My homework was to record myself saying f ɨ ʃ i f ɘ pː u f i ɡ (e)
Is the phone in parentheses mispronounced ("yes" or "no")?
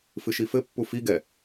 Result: yes